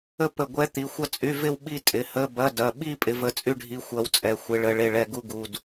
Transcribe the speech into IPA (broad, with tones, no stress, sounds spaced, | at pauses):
ə˥˧ p ə˧˩ ɡʷ ɛ˧˥ t̪ i˩˧˩ xʷ ɐ˥˧ t͡sʼ y˧˥˧ v ɪ˥˧ w ɓ i˥˧ tʼ ɪ˩˧˩ h ə˧˥˧ b ɐ˧˥˧ d ɐ˩˧˩ ɓ i˥˧ pʼ ɪ˧˥ v ə˧˥˧ t͡sʼ y˥˧ ɖʱ i˧˥ xʷ ɐ˧˥ w t͡sʼ ɛ˩˧˩ xʷ ɪ˧˥ ɭ ə˧˥˧ ɭ e˥˧ ɭ ɛ˧˩ ɡ u˥˧ ɡ u˩˧˩ d